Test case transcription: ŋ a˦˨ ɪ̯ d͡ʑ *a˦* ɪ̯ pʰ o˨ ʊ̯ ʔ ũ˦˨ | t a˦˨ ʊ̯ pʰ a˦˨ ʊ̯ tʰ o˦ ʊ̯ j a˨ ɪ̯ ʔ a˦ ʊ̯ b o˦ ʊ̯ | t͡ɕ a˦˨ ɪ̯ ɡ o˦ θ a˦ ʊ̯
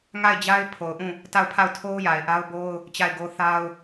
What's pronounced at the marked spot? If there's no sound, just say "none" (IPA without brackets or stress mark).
a˦